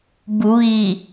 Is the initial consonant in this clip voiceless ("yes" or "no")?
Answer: no